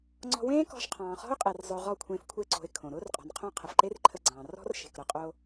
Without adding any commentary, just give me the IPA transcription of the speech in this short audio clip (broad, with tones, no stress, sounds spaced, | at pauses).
ŋ͡ǀ ɔ̤˧ w ẽː˦ k ɔ̤˧ ʃ qʰ ɑ̃ː˨ χ ɔ̤˦ ʊ̯ qʼ e˨ r zˤ ʊː˧ ʁ ɔ˦˨ kʷʰ ẽː˧ f kʷʰ e˧ ǀ o̤˨ ɪ̯ kʰ õ˨ ɾ ʊː˦ r qʼ ɔ̤˨ n qʰ õ˦ qʰ ə˨ f ǃ e˦ r ǃʰ ə˧ ɡ͡ǀ ɑ̃ː˨ r ɔ̤˦ r ʃ e̤˨ k ɾ ʊ˧ qʼ o˧